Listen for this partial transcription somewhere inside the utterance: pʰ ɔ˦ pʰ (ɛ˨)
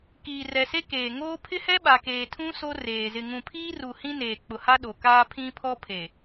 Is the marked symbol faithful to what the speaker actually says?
no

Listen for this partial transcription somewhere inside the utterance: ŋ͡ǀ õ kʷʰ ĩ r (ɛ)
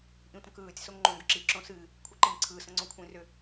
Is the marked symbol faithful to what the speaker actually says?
no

